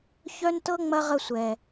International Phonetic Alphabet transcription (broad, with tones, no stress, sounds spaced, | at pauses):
ç œ˦ n t ɤ˦ ŋ͡m ɐ˦ ʁ ə˦˨ sʷ ɛ˨